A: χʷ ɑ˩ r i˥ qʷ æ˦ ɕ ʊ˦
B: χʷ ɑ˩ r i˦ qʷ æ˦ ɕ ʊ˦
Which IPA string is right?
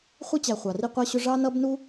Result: B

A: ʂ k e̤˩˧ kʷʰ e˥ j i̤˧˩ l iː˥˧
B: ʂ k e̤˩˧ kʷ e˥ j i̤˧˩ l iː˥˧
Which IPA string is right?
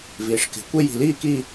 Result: B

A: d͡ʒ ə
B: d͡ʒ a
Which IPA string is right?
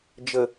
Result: A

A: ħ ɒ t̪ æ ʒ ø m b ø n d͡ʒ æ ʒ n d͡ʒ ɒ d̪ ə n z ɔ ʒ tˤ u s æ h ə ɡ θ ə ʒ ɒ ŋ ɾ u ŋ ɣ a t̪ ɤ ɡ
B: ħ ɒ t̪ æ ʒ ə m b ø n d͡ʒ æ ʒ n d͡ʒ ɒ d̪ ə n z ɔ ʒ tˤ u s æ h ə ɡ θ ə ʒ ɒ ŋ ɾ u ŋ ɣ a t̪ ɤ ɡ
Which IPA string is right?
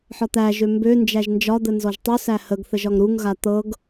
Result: A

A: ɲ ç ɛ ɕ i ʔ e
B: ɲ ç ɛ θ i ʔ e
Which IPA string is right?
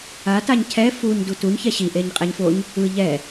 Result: A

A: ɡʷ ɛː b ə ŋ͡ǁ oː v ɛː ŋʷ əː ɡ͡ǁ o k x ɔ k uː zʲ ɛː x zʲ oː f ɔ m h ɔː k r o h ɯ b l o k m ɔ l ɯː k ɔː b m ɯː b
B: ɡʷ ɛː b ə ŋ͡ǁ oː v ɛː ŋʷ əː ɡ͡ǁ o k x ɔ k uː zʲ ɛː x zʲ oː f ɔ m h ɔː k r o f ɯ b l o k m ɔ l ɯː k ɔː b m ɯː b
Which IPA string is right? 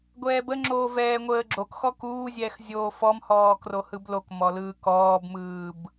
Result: A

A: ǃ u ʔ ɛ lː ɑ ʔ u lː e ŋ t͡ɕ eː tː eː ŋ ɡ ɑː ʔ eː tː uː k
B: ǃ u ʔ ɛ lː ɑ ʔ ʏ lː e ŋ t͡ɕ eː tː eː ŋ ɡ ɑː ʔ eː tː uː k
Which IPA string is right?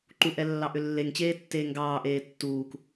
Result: B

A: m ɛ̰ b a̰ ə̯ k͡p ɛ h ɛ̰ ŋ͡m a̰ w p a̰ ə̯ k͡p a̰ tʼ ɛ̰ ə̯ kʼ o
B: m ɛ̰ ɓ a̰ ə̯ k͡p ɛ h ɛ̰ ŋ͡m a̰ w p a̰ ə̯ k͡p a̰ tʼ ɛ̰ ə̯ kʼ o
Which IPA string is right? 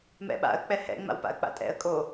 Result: B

